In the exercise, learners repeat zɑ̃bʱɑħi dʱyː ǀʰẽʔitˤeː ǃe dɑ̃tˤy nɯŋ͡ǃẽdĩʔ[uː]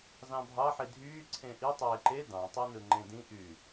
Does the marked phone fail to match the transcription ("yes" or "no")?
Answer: yes